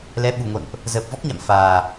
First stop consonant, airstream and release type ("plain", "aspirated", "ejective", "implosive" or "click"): implosive